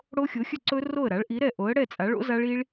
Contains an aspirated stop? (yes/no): no